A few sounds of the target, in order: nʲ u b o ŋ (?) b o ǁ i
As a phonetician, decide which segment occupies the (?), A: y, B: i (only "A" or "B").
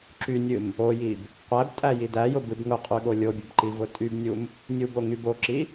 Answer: A